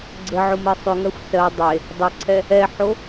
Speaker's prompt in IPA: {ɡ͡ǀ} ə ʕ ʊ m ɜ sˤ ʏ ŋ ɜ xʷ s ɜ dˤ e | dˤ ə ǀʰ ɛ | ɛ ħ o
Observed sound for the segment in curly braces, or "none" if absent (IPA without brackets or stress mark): ɡ͡ǀ